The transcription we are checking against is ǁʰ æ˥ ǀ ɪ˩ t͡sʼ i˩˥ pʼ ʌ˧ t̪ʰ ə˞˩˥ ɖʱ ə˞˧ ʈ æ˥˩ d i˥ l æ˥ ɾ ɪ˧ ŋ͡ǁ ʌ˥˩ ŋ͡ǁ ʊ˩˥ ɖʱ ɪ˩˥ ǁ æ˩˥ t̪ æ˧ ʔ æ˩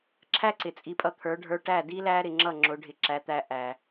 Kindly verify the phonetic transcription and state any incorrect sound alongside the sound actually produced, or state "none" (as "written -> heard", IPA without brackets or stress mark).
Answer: none